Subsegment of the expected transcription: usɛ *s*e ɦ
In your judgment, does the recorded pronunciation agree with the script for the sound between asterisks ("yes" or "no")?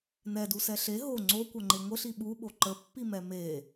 no